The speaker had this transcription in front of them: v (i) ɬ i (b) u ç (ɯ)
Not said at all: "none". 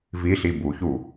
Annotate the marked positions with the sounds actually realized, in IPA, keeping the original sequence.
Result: i, b, u

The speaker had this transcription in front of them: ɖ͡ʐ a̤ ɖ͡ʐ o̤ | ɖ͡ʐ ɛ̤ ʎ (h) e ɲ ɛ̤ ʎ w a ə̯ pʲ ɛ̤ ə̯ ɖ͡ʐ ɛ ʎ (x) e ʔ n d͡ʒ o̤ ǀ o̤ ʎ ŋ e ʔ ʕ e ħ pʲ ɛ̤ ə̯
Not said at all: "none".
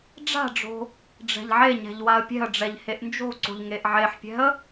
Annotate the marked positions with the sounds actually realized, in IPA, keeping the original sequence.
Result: ʕ, h

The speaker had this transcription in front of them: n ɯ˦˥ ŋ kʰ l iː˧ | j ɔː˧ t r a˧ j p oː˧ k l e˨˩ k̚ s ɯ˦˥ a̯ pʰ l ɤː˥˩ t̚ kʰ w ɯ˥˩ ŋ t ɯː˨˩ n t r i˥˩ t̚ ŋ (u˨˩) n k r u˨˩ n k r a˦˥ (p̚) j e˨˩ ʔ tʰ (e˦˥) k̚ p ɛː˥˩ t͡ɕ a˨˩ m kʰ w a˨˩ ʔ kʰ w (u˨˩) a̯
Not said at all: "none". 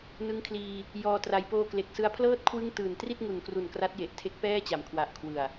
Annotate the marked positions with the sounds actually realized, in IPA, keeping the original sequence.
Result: u˨˩, t̚, e˦˥, ɯ˨˩

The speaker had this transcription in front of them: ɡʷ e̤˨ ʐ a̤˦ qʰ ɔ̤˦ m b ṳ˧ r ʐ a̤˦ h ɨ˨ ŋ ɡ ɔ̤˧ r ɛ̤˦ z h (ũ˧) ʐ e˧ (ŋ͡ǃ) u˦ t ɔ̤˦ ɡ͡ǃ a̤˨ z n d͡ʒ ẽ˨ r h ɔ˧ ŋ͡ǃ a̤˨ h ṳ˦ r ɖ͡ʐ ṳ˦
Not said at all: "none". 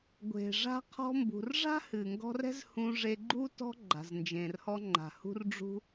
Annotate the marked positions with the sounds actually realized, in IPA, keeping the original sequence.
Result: ũ˧, ɡ͡ǃ

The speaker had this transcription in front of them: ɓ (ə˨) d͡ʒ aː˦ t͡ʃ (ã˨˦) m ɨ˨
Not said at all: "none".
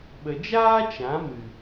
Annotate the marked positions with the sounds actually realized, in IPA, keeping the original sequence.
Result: ə˨, ã˨˦

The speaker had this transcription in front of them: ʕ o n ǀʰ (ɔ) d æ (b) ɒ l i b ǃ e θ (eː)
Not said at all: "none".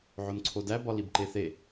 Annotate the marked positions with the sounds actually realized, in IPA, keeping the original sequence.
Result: o, b, e

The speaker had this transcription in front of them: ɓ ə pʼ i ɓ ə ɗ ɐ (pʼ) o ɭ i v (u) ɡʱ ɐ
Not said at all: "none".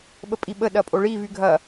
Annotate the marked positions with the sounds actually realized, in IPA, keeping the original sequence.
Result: pʼ, y

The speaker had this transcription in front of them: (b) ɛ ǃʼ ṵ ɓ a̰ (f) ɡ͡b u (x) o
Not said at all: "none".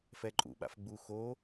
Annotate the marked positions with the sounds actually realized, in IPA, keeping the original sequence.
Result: f, f, x

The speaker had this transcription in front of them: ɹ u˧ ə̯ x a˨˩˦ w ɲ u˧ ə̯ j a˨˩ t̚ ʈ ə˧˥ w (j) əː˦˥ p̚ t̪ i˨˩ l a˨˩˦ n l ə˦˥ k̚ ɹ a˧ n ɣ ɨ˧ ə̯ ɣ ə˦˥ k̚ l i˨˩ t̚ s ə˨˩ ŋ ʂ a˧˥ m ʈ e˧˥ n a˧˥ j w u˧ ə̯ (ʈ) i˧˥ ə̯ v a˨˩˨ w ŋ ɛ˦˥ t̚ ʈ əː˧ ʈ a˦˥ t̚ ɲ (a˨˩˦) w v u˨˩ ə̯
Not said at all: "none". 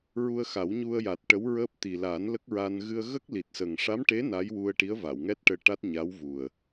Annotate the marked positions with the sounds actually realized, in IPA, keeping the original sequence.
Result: ɹ, ʈ, a˧˥

